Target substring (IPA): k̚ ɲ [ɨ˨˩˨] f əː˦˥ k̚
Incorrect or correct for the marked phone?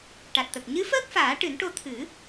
incorrect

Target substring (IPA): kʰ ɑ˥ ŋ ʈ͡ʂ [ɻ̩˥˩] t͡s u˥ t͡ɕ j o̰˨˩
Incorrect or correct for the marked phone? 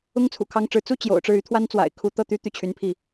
correct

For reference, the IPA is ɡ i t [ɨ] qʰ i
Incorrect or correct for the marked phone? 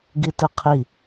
correct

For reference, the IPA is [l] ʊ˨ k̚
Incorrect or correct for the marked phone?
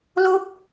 correct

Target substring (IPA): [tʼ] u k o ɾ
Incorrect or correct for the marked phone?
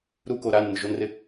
incorrect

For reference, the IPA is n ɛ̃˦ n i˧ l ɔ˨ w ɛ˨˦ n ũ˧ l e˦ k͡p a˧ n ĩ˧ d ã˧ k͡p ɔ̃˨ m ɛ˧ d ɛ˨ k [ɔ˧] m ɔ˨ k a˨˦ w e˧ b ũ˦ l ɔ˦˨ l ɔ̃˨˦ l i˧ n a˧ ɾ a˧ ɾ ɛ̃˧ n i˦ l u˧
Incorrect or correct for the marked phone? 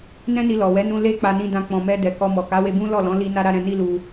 correct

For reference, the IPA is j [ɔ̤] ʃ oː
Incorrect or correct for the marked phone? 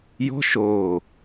correct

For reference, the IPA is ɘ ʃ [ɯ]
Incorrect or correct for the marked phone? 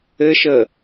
incorrect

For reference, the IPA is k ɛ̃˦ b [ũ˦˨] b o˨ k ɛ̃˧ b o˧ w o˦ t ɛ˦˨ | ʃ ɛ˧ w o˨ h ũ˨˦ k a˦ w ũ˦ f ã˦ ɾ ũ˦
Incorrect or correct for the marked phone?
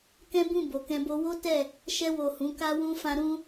correct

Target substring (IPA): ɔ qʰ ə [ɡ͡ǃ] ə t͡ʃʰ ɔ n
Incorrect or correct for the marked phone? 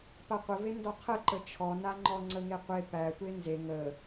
incorrect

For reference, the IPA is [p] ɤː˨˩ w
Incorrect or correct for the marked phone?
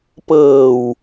correct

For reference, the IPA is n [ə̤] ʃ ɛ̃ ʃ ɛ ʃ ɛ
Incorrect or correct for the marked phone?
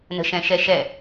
correct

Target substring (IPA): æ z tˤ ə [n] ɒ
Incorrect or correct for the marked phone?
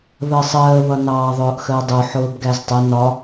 correct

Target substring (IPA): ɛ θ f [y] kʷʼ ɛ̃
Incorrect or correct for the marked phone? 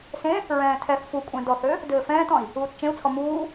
incorrect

